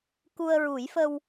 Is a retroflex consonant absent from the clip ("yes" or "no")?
yes